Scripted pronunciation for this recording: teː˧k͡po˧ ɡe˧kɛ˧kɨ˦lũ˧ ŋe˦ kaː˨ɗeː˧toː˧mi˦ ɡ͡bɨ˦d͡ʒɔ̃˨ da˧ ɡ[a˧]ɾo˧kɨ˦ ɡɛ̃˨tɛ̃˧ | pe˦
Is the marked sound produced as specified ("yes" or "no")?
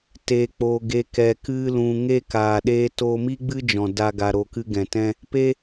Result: yes